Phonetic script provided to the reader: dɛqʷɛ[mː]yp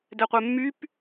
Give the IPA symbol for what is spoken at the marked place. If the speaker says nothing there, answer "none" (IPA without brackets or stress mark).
mː